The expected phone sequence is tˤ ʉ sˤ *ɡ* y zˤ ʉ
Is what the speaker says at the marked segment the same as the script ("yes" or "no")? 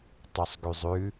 yes